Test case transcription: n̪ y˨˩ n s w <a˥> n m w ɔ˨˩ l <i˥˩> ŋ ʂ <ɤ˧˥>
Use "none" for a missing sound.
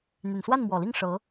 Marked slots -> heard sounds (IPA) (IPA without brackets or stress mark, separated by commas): a˥˩, i˥˩, ɤ˧˥